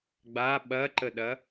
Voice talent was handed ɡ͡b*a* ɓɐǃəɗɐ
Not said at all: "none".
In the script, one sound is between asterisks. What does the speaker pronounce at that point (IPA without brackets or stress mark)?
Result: a